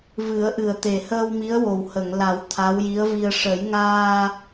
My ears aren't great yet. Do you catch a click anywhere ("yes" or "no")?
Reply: no